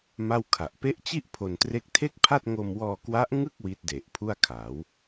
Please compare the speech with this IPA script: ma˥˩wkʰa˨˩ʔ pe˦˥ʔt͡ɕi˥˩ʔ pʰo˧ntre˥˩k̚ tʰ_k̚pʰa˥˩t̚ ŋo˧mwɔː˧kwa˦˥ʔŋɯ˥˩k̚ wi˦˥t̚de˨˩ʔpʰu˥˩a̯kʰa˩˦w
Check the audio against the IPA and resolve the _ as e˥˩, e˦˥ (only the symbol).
e˥˩